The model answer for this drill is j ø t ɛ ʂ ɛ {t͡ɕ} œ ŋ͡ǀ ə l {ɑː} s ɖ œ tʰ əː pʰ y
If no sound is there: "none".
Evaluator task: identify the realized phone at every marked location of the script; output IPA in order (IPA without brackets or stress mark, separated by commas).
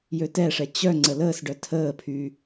t͡ɕ, əː